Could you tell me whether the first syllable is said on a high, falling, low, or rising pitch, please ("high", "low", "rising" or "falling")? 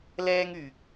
high